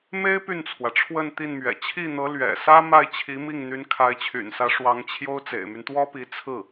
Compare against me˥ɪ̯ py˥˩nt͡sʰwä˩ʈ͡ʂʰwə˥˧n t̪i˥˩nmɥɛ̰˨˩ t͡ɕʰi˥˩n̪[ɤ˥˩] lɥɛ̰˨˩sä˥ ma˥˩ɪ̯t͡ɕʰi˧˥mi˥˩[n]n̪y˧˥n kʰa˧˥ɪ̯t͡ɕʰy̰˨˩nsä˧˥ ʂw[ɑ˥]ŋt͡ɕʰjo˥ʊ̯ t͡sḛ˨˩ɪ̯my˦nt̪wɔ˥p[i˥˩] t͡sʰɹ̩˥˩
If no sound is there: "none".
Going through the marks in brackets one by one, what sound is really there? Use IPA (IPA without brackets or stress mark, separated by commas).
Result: ɤ˧˥, ŋ, ɑ˧˥, i˧˥